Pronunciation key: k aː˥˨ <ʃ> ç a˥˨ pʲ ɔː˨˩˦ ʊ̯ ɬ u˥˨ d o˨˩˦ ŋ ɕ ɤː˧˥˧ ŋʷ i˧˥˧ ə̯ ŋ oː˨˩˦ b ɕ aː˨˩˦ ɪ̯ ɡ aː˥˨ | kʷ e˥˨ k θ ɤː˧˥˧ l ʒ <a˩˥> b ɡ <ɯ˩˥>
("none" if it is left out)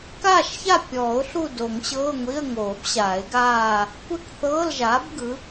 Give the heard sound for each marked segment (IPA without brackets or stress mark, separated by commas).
ʃ, aː˩˥, ɯ˩˥